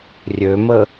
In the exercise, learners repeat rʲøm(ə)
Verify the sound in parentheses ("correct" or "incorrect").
correct